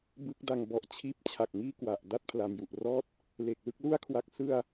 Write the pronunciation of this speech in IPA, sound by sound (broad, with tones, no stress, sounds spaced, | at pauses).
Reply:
b ɯ˦˥ k̚ d a˧ ŋ b ɔ˨˩ ʔ t͡ɕʰ iː˦˥ p̚ t͡ɕʰ a˨˩ k̚ ŋ iː˥˩ k w a˨˩ ʔ d a˦˥ t̚ pʰ l a˩˦ m j u˨˩ ʔ r ɔː˥˩ t̚ | l e˨˩ k̚ l ɯ˥˩ k̚ l u˥˩ a̯ kʰ w a˦˥ k̚ s ɯ˥˩ a̯